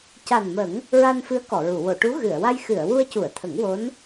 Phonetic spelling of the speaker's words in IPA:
ca˨˩nmə˨˩˦ŋ | ɹa˧nfɨ˧˥ə̯ kɔ˨˩˨ɹu˨˩˨ wo˨˩˨ʈu˧˥ ɣɨ˨˩˨ə̯wa˧j xɨ˨˩˨ə̯ wu˧ə̯cu˨˩˨ə̯t̪ʰə˨˩˦ŋ wo˧˥n

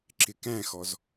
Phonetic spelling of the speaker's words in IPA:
ǁɪkæ̃xɔz

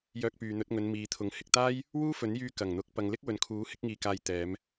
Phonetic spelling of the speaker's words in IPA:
jœː˧k̚pyː˨n̪ɵ˨˥t̚ŋɵ˨˧n miː˨˧t̪ʰʊ˨˥ŋ hɪ˨k̚t̪aː˥j | wuː˥fɵ˨˥njyː˧ kɐ˨˩ŋn̪ʊ˨˥k̚pɐ˨ŋlɪ˥k̚ wɵ˨nkʰuː˨˥ hɪ˥k̚ŋiː˧kaː˧jt̪ɛː˨˧m

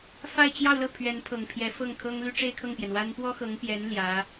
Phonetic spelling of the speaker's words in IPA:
fa˥˧ɪ̯t͡ɕjɑ˥˧ʊ̯lɤ˥˩ pʰɥɛ˧˥npʰɤ˨˩ŋpʰjɛ˧˥fɤ˥˩ŋ kʰɤ˥ŋly˥ ʈ͡ʂe˥˧ɪ̯kʰɤ˥˩ŋpjɛ˩nwa˥n pwɔ˥xɤ˧˥ŋpjɛ˧˥n ljä˧˥

